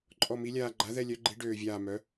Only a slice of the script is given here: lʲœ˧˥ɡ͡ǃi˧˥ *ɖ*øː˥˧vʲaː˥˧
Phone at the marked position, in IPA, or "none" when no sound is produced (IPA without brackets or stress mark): ɖ